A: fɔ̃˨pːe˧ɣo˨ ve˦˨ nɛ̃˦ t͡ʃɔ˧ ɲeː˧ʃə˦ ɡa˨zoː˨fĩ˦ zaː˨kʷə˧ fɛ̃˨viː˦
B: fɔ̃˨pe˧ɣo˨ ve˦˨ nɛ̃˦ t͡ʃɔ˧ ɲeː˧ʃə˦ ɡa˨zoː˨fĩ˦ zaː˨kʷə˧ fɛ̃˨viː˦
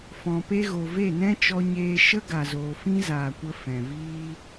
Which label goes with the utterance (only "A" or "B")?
B